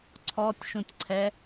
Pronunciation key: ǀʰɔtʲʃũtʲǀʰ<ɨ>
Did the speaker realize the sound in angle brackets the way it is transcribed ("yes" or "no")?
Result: no